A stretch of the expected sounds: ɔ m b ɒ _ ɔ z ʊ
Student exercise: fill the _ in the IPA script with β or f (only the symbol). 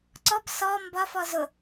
f